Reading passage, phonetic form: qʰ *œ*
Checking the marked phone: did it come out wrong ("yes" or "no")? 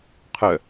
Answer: no